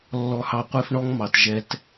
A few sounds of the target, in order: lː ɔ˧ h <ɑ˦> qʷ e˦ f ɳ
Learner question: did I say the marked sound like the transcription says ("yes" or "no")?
no